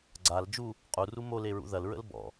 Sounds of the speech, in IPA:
ɡ͡ǀ a l d͡ʒ u | qʼ u r u m o l e ɹ ṵ ð ɐ l ɹ ə̰ l b ɔ̰

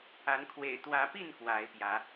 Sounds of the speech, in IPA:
a˨˦ n kʰ w ḛ˨˩ ɪ̯ t̪ w ä˨˦ p i˥˨ n k w a˨˦ ɪ̯ p j ä˨˦

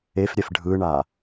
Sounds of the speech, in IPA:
e f ɾʲ ɛ f ɖʱ ɯ ɳ a

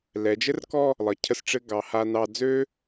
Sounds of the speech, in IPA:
l ɛ˩˧ d͡ʒ ɘ˥ r k ɔ˥˧ | lˠ ə˩˧ cʰ ə˥˧ s ʈ͡ʂ ɘ˥ ɡ ɑ˩˧ h a˧ n ɑ˧ d͡z ø˥

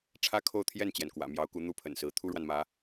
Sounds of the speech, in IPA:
ʈ͡ʂʰ ä˥ kʰ o˥˧ ʊ̯ t̪ʰ j ɛ˥˩ n t͡ɕ j ɛ˩ n k w ä̰˨˩ m j ɑ˧˥ ʊ̯ k u˧˥ n̪ u˥ pʰ ə̰˨˩ n s ɹ̩˧˥ t̪ʰ u˥ ɻ w a˨ n m ä˧˥

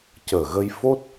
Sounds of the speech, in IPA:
c əː˨˩ ɣ ə˧ j f o˦˥ t̚

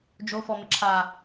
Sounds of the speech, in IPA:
d͡ʒ o f ɔ m ɪ ǁʰ a

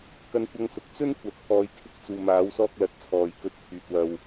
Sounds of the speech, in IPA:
k ɐ˧ n kʷ ɐ˧ ŋ s ʊ˨˥ k̚ t͡s ɵ˥ n kʷ ɐ˨ t̚ pʰ ɔː˨˧ j kʰ ɪ˧ k̚ t͡s uː˨ m aː˨˥ w s ɔː˧ k̚ l ɐ˨ t̚ t͡sʰ ɔː˨ j k ɵ˧ t̚ pʰ yː˨ t̚ w ɐ˨ w

